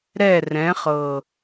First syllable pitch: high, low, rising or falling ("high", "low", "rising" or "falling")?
falling